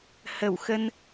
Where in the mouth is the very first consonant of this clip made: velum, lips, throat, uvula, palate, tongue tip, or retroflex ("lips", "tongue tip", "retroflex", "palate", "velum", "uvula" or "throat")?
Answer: throat